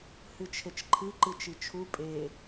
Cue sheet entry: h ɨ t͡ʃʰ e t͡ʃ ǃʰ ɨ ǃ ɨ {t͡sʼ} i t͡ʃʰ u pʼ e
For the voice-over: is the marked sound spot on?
no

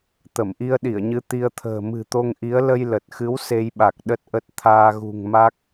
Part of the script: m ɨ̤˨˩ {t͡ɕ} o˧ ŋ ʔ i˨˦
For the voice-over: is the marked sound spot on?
no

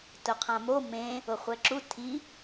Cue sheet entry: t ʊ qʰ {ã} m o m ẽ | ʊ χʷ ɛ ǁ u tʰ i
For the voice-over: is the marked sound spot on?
yes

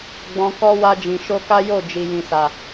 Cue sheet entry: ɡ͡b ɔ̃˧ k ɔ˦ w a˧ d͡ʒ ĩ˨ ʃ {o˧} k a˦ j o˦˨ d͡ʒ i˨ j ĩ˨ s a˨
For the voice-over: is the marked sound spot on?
yes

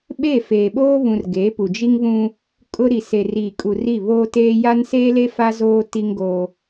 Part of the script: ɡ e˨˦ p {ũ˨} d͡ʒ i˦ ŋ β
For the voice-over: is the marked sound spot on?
no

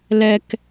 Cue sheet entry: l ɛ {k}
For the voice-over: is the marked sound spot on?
yes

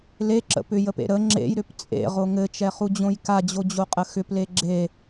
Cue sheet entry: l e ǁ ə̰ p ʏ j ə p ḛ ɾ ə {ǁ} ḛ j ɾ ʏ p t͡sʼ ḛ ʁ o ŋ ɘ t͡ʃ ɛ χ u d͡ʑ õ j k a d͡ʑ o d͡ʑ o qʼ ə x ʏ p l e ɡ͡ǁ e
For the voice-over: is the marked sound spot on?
no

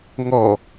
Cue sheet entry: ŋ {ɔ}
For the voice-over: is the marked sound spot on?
yes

